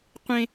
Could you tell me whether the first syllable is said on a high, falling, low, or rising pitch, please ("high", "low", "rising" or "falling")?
high